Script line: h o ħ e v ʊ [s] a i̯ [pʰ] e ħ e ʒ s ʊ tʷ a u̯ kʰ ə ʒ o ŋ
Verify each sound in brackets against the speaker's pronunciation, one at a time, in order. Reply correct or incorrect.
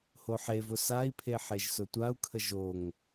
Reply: correct, correct

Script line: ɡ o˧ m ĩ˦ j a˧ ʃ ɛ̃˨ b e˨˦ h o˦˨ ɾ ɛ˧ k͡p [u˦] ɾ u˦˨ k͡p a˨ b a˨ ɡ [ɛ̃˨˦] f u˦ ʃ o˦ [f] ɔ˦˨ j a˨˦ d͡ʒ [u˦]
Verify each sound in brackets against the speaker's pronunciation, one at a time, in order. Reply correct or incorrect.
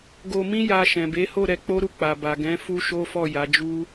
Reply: incorrect: o˦, correct, correct, correct

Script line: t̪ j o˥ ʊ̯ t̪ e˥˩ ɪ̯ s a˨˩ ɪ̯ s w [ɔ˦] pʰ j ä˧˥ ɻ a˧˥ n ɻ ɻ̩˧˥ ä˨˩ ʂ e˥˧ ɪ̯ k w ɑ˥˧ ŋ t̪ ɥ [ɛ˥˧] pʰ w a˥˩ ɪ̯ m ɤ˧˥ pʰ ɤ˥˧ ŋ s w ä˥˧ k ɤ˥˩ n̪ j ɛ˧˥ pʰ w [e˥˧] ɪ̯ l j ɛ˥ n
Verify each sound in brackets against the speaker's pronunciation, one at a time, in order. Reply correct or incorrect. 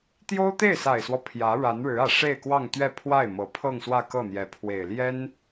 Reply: correct, correct, incorrect: e˨˩

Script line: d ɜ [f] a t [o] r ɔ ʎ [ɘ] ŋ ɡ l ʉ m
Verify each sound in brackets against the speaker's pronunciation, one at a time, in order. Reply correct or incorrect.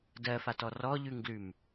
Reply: correct, incorrect: ɔ, incorrect: ʉ

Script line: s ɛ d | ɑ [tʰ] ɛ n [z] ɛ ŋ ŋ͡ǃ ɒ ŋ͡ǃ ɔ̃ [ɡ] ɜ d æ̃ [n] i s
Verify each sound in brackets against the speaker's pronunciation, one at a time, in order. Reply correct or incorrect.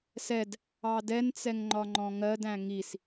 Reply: incorrect: d, incorrect: t͡s, incorrect: ŋ, incorrect: ŋ

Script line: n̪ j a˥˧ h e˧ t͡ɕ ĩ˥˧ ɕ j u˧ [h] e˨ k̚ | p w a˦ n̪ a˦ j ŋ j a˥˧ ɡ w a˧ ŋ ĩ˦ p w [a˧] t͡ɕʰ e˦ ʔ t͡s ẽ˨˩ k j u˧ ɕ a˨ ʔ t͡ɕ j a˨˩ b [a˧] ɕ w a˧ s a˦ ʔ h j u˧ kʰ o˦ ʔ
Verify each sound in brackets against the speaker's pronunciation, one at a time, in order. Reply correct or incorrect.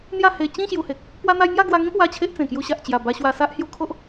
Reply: correct, incorrect: a˦, correct

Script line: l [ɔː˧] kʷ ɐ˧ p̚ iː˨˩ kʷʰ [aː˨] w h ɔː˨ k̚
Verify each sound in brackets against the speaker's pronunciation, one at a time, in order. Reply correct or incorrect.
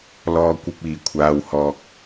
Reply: correct, correct

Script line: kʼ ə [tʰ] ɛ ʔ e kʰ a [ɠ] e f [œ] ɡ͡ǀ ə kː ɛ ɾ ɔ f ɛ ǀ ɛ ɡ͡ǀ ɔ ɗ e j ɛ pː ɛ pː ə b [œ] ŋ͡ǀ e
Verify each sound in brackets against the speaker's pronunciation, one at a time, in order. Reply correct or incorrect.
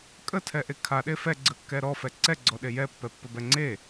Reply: correct, incorrect: ɗ, incorrect: ɛ, incorrect: ɛ

